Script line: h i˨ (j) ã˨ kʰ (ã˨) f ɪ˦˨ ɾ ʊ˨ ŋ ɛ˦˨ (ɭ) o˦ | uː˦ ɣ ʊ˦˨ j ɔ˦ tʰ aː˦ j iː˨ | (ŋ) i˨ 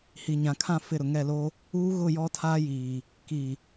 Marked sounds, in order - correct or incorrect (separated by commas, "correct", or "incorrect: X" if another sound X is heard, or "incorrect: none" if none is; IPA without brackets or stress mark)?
incorrect: ɲ, incorrect: ã˦˨, incorrect: l, incorrect: k